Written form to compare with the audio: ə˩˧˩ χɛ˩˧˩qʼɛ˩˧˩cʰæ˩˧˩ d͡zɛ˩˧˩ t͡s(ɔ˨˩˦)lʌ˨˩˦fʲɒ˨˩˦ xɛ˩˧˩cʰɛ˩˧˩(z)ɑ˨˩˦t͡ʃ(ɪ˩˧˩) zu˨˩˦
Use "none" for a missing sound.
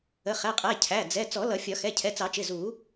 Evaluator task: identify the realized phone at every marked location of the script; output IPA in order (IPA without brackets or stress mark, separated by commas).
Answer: ɔ˨˩˦, t͡s, ɪ˩˧˩